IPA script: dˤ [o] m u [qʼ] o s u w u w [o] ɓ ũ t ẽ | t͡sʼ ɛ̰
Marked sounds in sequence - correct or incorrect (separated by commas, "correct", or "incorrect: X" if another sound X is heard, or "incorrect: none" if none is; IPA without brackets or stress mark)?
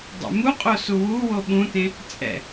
incorrect: o̰, correct, correct